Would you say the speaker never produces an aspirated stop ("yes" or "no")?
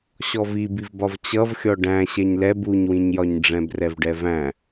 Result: yes